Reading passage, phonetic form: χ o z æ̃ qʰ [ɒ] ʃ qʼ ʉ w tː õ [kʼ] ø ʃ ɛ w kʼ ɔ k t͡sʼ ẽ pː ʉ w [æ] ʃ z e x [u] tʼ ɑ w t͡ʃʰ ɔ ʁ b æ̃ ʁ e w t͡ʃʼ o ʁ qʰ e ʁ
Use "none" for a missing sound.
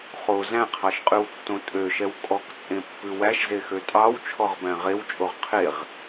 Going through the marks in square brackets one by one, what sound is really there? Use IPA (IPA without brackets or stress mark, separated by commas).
ɑ, tʼ, æ, ø